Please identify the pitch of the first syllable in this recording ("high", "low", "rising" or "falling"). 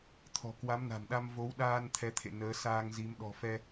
low